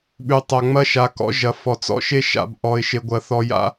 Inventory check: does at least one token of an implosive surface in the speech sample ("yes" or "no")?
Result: yes